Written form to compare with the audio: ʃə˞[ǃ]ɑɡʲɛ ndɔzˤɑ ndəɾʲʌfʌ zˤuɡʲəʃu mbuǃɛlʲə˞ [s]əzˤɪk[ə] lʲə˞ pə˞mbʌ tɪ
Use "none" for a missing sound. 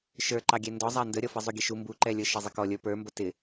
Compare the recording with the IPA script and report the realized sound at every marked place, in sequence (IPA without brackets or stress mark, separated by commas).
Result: ǃ, ʃ, ɔ